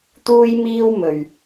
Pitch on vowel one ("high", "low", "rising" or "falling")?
high